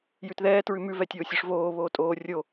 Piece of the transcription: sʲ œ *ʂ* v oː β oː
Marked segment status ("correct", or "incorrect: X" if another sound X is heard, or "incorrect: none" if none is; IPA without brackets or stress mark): correct